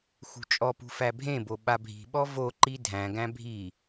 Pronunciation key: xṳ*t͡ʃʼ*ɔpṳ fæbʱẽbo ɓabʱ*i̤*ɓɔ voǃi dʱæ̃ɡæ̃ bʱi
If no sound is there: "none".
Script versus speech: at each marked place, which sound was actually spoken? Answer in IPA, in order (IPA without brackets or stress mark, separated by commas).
t͡ʃʼ, i̤